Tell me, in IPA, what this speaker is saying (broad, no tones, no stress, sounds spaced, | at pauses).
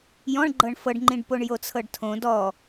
j ɔ̃ ɳ ɡ͡ǃ ɤ ɳ f ɤ ɖ ŋ͡ǃ ĩ ɖ p o ɳ j o t͡sʰ ɤ ɖ tʰ õ d ɔ